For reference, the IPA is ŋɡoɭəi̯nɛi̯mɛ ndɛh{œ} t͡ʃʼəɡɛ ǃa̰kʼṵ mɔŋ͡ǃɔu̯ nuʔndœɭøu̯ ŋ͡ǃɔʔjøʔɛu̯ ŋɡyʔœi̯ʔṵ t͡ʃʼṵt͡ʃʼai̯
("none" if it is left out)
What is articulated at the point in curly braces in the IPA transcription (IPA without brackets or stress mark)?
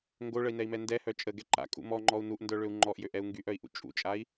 œ